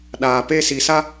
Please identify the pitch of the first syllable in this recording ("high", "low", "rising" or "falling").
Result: low